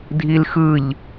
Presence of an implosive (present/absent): absent